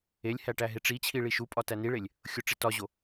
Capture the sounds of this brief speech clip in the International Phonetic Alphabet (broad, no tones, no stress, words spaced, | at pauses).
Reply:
elʲhæʈæ ɦeʈ͡ʂit͡ɕʰi ɭiʃupʼɒ tæniɭelʲ | xʲoʈ͡ʂitɒʑo